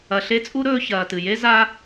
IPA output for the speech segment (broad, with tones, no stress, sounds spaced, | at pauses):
ɐ˨ ɬ e˦ t͡sʼ u˥ ɾ ɵː˦ ç ɐː˨ t ɨ˩ j e˥ z aː˥